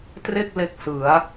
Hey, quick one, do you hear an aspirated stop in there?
no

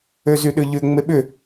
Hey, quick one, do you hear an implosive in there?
yes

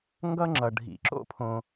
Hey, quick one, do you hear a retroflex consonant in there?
yes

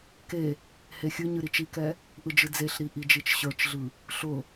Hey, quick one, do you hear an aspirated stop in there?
no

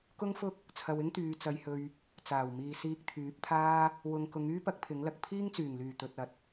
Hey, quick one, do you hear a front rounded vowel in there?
yes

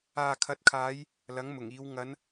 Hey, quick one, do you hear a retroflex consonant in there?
no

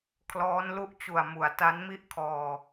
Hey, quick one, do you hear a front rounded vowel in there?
no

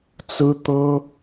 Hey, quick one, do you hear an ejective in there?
no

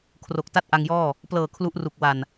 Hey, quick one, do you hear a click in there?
no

